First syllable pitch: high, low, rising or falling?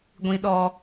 low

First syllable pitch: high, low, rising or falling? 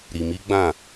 low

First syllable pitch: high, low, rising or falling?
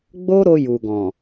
high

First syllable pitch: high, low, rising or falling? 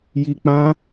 low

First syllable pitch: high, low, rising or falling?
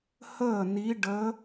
falling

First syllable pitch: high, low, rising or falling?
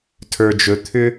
low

